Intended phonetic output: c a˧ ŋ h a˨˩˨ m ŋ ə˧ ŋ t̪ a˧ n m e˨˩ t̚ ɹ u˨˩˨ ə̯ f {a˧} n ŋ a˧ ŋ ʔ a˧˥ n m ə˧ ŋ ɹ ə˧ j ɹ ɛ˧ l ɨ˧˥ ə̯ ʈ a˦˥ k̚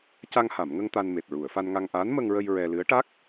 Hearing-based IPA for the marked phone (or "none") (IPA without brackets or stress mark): a˧